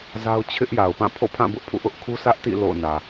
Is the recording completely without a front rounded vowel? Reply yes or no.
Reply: yes